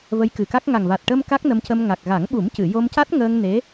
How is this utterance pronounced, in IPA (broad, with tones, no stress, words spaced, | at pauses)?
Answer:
və˧˥jkɨ˨˩ka˦˥k̚ ŋa˨˩ŋva˨˩t̚ʈəː˧m ka˦˥k̚ nə˧mcə˧m ŋa˨˩k̚ɣa˨˩˦ŋɓu˨˩˦mcɨ˨˩˨ jo˧mca˦˥t̚ŋəː˧ŋ ne˧˥